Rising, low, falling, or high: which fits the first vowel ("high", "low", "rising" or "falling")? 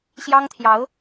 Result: high